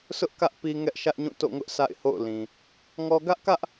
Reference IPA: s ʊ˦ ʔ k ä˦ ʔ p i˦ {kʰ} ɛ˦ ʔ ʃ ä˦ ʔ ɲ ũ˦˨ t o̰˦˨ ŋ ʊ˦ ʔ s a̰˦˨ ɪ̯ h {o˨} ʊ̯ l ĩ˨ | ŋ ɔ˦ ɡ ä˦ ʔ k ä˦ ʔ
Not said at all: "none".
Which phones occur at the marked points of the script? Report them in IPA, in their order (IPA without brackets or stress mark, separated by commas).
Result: ŋ, o̰˦˨